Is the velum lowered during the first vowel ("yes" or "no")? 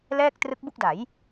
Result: no